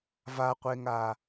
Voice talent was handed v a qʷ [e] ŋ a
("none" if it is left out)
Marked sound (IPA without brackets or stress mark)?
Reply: e